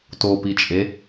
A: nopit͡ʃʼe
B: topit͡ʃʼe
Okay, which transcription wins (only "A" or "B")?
B